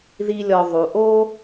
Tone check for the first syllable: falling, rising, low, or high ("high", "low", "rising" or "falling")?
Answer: high